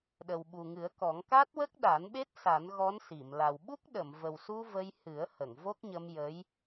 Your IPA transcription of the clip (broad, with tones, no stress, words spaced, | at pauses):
ɗə˨˩wɓu˨˩ŋɨ˨˩˦ə̯kɔ˨˩˦ŋ ka˦˥t̚wə˦˥k̚ ɗa˨˩˦nɓe˦˥t̚ sa˨˩˦nɣɔ˧˥nsi˨˩˨m la˨˩w ɓu˦˥k̚ɗə˨˩˨mvə˨˩wsu˧ və˧jhɨ˨˩˦ə̯hə˨˩˨ŋ vo˦˥k̚ɲə˧mjə˧˥j